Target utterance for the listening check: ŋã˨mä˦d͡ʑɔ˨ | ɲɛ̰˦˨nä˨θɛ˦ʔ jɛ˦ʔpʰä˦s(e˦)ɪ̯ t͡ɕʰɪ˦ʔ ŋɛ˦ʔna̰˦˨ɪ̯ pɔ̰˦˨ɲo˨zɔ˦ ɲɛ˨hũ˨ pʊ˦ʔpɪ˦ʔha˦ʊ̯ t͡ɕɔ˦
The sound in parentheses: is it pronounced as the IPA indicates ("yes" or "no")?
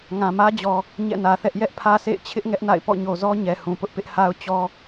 no